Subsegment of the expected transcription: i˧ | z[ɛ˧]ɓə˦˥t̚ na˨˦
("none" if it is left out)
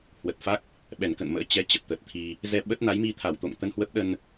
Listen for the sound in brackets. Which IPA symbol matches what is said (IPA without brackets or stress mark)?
ɛ˧